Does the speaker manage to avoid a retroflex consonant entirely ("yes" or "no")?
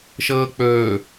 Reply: yes